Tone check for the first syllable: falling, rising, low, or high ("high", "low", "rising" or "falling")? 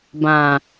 low